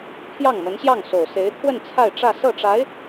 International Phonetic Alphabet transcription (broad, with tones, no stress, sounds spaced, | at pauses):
pʰ j ɑ˥˩ ŋ m ə˧˥ n ɕ j ɑ˥˩ ŋ s o˨˩ ʊ̯ s e˧˥ ɪ̯ t̪ʰ w ə˥˧ n t͡sʰ a˥˧ ɪ̯ ʈ͡ʂ ä˥˧ s ɤ˥˩ ʈ͡ʂ a˧˥ ɪ̯